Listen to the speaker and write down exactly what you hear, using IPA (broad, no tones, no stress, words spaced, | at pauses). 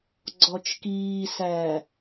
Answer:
ɡ͡ǀɔt͡ʃkiːsæ